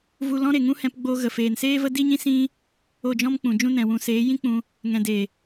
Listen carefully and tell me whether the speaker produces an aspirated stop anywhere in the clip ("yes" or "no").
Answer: no